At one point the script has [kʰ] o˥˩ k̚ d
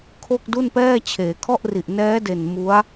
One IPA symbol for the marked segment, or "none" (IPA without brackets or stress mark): kʰ